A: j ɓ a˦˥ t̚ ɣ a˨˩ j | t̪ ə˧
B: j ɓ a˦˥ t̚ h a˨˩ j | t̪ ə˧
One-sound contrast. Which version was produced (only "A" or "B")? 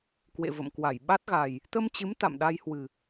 A